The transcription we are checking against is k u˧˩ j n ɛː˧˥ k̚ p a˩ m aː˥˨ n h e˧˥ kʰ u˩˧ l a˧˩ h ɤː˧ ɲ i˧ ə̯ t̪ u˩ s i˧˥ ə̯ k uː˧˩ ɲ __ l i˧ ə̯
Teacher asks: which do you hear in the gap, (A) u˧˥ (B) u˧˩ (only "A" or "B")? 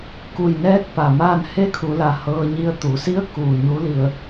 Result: A